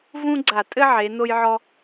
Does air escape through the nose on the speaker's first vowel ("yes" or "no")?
yes